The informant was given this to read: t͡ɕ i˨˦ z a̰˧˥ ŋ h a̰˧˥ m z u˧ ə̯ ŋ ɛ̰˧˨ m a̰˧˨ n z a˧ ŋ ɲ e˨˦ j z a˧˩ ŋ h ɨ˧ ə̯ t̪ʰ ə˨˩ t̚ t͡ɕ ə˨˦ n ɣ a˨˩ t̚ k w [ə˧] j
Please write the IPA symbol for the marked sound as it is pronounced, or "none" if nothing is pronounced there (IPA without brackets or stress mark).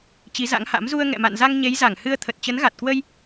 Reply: ə˧